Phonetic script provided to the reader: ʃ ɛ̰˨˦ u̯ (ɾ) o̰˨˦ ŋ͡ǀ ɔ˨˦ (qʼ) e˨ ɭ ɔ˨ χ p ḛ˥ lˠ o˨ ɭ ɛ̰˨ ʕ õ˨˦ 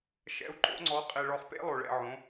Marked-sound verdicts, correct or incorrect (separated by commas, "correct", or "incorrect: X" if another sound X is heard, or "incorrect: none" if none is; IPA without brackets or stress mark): incorrect: ǃ, correct